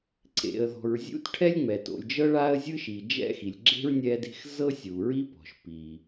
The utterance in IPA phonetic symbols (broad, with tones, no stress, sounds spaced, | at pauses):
ǀ ḛ˩ ə̯ ð ɔ̤˩ ɹ zʲ ṵ˥ t ʈʰ ɛ˥ lʲ ŋ͡m ɛ˩ t o̰˩ lʲ d͡ʒ ɤ˥ ɭ a˥ ə̯ zʲ ɯ˥ ʃ i˩ d͡ʒ ɛ̰˥ x i˩ lʲ ɡ͡ǁ e̤˥ ɹ nʲ ɛ˥ d e̤˥ x z ɤ˥ sʲ u˩ ɹ i˥ p ɔ̤˩ ʃ p i˩